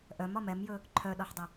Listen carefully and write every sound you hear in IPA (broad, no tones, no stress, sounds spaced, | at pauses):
ʔ œ m ɒ m ɛ m j ɵ | ǃʰ œ ɗ ɒ ħ dˤ ə